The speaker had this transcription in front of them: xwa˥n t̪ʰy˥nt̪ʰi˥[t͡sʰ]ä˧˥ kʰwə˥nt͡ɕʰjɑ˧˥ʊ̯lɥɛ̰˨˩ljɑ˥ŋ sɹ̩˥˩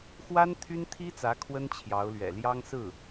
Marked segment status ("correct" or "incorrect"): incorrect